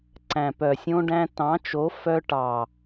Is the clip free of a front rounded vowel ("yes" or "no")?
no